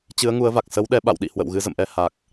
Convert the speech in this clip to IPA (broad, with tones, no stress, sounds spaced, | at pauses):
t͡ɕ ɨ˨˦ ə̯ ŋ u˨˦ ə̯ v a˨˩ k̚ s ə˨˦ w ɗ ɛ˨˦ ɓ a̰˧˨ w ɗ ḭ˧˨ h w ə̰˧˨ w ɣ ɨ˨˦ z ə̰˧˨ m ʔ ɛ˧ h a˨˩ k̚